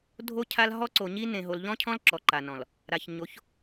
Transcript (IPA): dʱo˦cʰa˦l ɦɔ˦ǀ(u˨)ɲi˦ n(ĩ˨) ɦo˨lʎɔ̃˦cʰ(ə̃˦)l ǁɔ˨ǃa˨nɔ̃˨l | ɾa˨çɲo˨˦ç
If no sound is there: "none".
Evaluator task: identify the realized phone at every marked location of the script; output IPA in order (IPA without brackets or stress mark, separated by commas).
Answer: o˨, ẽ˨, ɔ̃˦